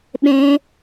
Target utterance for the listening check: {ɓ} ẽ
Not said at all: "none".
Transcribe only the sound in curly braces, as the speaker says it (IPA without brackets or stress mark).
ɓ